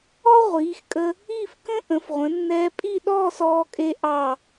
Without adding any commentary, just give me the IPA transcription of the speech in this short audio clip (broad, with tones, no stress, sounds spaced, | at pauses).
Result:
ɔ˥ ʁʷ iː˩˧ x kʼ ə˧ | i˥˧ f k ə̃˥ ʔ ə̃˩˧ f ʁʷ ə̃˩˧ nː ɛː˧ pʼ i˥˧ ɗ ɔː˥˧ s ɔː˧ kʼ e˧ ʔ ɑ˧˩